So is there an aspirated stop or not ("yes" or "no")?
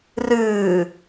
no